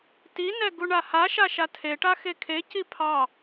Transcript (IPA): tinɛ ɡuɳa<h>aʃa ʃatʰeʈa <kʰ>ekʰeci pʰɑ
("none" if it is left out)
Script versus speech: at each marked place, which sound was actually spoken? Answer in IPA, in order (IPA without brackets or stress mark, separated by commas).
h, x